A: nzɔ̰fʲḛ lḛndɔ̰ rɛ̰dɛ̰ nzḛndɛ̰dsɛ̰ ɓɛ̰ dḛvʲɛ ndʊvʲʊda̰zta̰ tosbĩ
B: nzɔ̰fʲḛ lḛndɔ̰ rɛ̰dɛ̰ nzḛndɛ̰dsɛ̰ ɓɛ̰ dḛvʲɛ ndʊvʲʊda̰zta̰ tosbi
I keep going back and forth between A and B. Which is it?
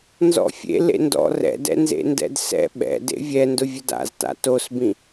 A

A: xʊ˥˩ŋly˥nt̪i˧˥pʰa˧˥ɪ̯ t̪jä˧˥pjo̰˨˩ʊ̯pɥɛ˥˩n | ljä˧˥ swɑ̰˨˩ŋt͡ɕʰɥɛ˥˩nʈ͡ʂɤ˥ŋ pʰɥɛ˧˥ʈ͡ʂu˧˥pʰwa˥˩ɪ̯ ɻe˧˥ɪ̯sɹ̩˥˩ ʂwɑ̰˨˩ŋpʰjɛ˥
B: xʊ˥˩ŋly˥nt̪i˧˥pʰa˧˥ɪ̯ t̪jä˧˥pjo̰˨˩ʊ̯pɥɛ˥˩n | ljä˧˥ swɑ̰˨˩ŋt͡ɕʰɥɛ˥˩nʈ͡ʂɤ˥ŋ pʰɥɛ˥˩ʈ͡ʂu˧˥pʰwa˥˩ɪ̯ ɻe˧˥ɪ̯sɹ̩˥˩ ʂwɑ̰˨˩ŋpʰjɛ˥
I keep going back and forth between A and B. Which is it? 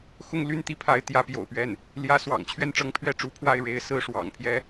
B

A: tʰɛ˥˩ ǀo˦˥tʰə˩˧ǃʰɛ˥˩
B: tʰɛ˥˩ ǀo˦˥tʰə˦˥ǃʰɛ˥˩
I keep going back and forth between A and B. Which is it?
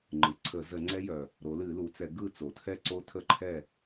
B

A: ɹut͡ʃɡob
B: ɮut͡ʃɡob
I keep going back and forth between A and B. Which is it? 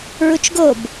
A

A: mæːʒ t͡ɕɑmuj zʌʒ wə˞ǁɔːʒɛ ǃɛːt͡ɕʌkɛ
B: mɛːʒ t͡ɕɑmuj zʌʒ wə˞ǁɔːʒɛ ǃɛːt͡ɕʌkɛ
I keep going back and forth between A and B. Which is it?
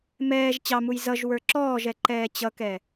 B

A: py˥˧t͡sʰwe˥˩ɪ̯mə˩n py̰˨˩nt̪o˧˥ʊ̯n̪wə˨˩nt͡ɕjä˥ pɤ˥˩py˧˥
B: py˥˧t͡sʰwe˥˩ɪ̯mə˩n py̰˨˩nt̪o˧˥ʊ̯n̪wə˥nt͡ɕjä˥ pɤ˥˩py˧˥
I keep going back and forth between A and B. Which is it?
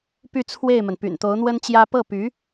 B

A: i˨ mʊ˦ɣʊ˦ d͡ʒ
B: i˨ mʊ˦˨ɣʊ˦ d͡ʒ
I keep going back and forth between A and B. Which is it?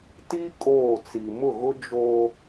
B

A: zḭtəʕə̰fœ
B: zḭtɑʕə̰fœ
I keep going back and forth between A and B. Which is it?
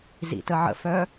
A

